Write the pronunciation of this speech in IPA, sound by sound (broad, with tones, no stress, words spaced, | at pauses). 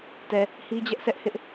tɛ˨ | hi˦d͡ʑɛ˦ʔ sɛ˦ʔhɪ˦ʔ